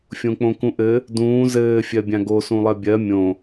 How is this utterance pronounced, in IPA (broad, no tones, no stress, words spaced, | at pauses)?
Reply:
fʲõk͡põkũʔɘ | dũː zɘː fʲɜbʲãɡo sũlˠɜbʲɜ mʲõ